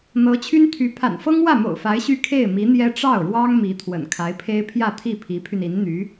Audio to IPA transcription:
n̪ ɤ˧˥ t͡ɕʰ y˥ n t̪ʰ y˧˥ pʰ a̰˨˩ n f ɤ˥ ŋ w ä˥˩ m o̰˨˩ ʊ̯ f a˧˥ ɪ̯ ɕ y˥ kʰ e˥˩ ɪ̯ m i˧˥ n̪ j ɛ˥ ʈ͡ʂ ɑ˥˩ ʊ̯ ɻ w ɑ˥ ŋ m i˧˥ t̪ʰ w ə̰˨˩ n kʰ a˧˥ ɪ̯ pʰ e˥ ɪ̯ pʰ j ä˥˧ t̪ʰ i˥˩ pʰ i˧˥ pʰ y˧ n i˧˥ n n̪ y˧˥

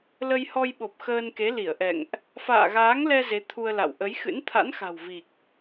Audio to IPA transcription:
l ə˧ j h ɔ˧ j ɓ o˨˩ p̚ x əː˧ n k e˨˦ l i˧˩ ə̯ ʔ ɛ̰˧˨ ŋ ʔ | f a̰ː˧˨ ɣ aː˨˦ ŋ l ɛ˧ z e˨˦ t̪ʰ u˧ ə̯ l a̰˧˨ w ʔ ə˨˦ j x ɨ̰˧˥ n t̪ʰ a̰˧˥ n x a̤˨˩ w v i˨˩ k̚

